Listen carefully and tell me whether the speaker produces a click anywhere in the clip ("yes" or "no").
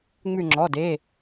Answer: yes